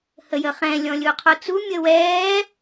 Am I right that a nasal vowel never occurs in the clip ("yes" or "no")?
no